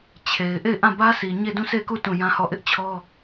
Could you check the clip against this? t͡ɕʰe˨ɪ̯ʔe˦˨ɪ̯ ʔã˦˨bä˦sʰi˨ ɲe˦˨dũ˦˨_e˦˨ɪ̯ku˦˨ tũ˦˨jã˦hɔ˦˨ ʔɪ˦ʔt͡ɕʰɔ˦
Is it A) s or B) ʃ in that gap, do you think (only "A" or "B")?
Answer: A